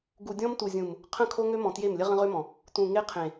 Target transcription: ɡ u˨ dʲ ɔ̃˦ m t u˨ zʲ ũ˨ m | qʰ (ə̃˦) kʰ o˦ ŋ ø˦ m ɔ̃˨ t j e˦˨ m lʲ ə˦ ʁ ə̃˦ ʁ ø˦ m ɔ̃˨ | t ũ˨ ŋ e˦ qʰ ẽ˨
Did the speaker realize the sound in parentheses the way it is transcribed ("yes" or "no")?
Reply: no